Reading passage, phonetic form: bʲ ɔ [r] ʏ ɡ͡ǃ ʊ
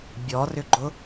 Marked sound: correct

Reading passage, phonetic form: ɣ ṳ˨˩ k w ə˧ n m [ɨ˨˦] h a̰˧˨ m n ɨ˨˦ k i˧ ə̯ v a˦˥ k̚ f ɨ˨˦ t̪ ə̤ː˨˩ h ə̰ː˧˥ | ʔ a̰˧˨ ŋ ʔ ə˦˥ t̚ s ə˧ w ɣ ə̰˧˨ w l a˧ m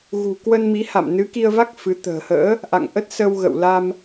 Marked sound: incorrect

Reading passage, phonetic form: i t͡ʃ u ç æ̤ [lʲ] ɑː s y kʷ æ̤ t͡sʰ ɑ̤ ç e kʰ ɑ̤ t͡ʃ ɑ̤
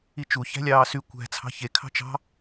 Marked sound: correct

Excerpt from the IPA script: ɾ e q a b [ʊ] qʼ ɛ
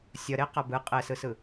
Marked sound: incorrect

